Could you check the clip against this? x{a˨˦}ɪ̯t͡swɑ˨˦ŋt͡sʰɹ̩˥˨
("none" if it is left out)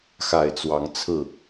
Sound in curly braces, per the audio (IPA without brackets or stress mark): a˨˩